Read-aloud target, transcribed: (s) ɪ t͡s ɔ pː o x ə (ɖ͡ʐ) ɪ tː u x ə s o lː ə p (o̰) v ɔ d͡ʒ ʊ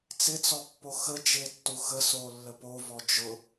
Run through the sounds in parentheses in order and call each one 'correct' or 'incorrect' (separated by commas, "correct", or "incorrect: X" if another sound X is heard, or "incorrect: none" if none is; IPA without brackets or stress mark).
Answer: incorrect: t͡s, incorrect: d͡ʒ, incorrect: o